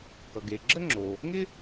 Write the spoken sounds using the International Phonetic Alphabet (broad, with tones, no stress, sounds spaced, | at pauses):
k ʌ˩ ɡ e˩ ɡ͡ǁ ə˥ ŋ͡ǁ o˩ | ŋ ɪ˥